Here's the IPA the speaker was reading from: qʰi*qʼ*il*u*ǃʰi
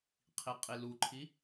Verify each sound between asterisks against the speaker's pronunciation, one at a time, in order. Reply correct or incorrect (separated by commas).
correct, correct